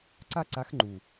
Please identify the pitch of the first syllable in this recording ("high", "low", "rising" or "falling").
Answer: falling